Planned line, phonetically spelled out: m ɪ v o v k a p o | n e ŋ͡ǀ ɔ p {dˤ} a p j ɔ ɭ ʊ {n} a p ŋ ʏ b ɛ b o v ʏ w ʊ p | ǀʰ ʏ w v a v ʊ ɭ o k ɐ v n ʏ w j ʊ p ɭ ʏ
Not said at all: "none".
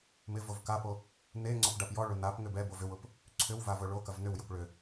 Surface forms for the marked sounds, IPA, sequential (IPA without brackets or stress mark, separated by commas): ɖ, n